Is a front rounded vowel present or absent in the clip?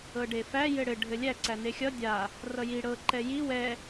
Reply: absent